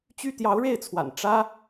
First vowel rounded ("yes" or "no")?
yes